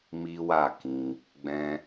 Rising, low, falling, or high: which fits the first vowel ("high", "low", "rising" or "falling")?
high